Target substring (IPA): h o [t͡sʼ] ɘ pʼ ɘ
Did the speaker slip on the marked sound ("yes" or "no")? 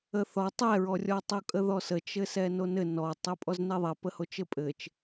yes